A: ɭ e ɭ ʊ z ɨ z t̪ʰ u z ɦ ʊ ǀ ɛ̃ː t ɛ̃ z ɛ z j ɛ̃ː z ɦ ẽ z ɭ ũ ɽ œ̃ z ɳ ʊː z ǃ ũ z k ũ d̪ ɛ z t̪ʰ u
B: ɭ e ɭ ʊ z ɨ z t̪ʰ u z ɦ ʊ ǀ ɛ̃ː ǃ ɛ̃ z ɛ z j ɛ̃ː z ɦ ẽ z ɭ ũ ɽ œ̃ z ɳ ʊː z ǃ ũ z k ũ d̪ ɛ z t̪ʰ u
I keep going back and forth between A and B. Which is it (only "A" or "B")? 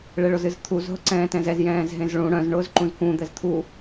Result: A